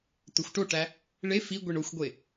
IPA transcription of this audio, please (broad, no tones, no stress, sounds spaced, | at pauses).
t ɵ xʷ ʈ o ʈ æ | ɭ e f i ɡʷ i ɳ o xʷ ɡʷ e